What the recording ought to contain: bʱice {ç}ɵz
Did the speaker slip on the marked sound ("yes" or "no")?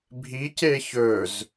no